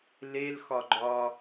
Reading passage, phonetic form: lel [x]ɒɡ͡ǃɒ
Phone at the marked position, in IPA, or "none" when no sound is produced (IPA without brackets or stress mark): x